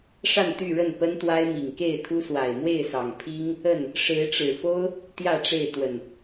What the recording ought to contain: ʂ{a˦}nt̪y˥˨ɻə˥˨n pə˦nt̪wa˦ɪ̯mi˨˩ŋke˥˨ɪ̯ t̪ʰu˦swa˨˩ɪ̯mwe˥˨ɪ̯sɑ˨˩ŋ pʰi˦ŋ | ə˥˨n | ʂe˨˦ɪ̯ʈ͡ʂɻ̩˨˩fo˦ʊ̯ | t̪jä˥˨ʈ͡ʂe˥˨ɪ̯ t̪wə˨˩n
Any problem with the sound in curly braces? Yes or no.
yes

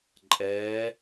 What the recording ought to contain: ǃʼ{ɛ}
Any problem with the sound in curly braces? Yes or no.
no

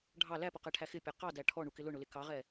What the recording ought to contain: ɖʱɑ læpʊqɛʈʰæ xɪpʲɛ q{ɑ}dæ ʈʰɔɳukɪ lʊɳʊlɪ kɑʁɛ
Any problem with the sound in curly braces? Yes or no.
no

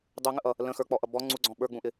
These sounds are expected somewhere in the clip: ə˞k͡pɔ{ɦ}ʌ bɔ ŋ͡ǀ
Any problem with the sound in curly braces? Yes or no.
yes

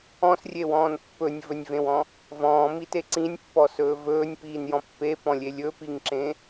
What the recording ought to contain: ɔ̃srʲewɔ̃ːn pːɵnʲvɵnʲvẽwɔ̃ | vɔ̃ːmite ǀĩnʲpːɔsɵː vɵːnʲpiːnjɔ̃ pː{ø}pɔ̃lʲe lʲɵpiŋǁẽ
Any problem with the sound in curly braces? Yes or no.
yes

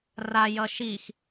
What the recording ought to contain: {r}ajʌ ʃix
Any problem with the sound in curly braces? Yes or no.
no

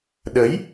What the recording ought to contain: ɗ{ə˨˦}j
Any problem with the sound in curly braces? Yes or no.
no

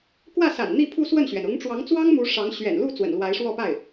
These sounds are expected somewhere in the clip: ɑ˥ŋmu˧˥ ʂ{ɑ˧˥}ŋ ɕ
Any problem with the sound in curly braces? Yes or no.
no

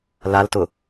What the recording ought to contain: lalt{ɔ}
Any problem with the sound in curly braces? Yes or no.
yes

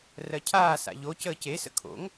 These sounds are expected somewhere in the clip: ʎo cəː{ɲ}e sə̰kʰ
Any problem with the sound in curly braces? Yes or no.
yes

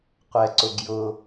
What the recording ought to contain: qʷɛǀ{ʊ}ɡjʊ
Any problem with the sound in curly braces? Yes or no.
no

